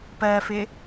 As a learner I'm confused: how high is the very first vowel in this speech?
mid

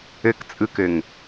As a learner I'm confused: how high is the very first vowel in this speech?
mid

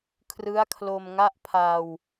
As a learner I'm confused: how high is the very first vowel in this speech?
high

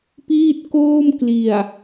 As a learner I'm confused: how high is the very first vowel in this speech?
high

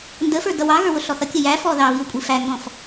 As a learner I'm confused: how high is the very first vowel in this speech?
mid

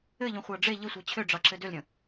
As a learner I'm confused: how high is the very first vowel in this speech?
mid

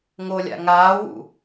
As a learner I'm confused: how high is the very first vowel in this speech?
mid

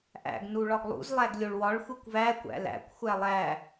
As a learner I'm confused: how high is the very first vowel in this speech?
low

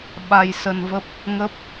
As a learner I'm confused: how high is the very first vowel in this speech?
low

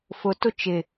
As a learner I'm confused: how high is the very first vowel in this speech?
high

